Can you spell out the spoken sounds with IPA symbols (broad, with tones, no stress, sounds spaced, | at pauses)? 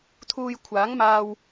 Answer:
t̪ʰ uː˧ j kʷʰ aː˨˥ ŋ m aː˧ w